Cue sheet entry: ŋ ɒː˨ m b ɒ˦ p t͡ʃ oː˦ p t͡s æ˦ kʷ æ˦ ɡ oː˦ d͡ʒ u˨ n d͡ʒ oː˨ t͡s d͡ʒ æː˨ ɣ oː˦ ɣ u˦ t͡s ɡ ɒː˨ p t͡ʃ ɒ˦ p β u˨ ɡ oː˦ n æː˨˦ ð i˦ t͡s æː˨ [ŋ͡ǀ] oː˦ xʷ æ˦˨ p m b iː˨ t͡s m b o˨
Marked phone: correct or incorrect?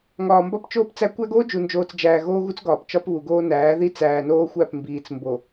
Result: incorrect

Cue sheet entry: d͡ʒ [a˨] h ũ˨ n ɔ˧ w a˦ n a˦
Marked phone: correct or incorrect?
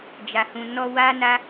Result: correct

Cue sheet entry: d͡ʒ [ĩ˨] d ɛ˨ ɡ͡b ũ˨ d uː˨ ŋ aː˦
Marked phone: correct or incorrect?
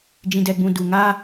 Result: correct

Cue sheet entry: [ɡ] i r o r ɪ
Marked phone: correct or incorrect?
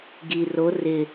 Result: correct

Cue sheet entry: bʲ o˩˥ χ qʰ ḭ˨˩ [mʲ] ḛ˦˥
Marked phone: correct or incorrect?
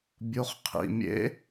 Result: correct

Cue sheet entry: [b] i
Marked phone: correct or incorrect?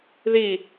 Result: incorrect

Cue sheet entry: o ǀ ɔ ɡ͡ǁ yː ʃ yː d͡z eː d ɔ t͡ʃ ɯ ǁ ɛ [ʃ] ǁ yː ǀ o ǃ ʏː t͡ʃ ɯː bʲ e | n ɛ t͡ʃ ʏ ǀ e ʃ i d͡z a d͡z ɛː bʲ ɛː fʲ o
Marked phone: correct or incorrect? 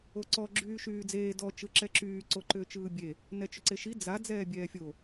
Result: incorrect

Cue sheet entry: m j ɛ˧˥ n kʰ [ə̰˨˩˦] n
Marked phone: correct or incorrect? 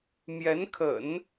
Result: correct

